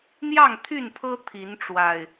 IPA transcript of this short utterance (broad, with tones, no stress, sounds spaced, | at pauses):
n̪ j ɑ˥˨ ŋ t̪ʰ y˥˨ n pʰ ɤ˦ t̪ʰ i˨˦ n ʈ͡ʂ w a˨˩ ɪ̯